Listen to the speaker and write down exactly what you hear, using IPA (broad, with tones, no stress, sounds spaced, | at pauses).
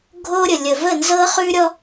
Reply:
ɡʱ o˦ ɾʲ ə˨ lʲ ə˨ v ə˦˨ n z ɤ˦ χ ʉ˦ ɾʲ ɔ˦